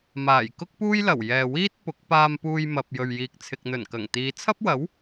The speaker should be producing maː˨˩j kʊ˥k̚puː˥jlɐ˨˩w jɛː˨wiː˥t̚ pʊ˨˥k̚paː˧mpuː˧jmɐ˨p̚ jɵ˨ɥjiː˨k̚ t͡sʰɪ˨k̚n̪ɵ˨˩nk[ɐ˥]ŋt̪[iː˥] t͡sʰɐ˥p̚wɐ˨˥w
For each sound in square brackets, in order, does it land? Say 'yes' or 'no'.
no, no

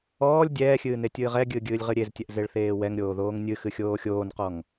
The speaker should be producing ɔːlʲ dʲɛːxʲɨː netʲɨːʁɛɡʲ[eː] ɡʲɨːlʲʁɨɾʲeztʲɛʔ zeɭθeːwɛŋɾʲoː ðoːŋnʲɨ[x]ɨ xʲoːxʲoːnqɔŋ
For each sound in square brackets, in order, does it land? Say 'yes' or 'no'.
no, yes

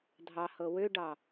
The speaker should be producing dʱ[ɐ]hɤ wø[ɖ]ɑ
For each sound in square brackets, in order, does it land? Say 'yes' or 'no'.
no, yes

